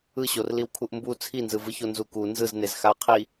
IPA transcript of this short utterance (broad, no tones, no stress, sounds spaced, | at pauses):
ɯ ɕ o r l i w kʰ u ʔ m b u t͡sʰ i n z ɯ v ɯ ç o n z u k u n z ɯ z n e z x a ɐ̯ qʰ i